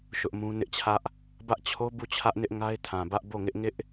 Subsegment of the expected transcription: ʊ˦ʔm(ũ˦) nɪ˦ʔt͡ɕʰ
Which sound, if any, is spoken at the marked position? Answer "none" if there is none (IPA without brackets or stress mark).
ũ˦